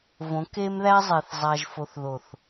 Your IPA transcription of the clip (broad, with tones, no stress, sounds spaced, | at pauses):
v õ˨˦ k e˦ m ð æ˦ zˤ e˨ θ zˤ a˨ ʒ f o˨ θ ð o˨ θ